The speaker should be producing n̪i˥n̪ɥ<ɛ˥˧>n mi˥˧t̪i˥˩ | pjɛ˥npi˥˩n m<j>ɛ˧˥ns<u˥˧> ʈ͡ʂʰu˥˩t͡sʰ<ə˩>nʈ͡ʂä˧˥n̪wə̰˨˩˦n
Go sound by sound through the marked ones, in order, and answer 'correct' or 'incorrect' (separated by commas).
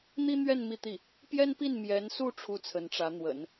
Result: correct, correct, correct, incorrect